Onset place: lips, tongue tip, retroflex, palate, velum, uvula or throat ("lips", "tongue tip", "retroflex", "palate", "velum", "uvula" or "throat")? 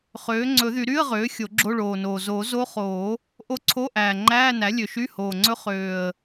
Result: uvula